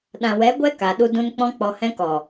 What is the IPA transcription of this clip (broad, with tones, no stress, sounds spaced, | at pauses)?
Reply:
ɗ ã˨ w ɛ˨˦ ɡʷ ɛ˦ k a˨ ɗ u˧ d ũ˧ n k͡p ɔ̃˧ k͡p ɔ˨ h ɛ̃˧ k ɔ˨